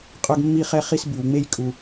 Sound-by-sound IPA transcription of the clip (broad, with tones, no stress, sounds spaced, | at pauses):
qʼ œ˦ ɡ mː i˦ χ ɛ˦ χ i˦ s b y˨ w ŋ͡m e˦ j kʼ u˨